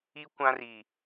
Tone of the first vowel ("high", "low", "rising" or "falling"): high